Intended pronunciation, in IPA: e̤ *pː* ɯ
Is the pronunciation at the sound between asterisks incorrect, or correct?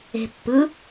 correct